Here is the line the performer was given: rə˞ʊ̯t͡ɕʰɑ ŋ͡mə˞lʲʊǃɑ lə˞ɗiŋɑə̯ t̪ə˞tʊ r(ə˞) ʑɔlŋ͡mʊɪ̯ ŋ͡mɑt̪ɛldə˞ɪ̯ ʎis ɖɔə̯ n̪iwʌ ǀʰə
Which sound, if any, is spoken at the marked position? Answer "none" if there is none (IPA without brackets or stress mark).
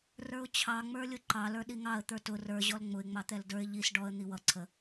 ə˞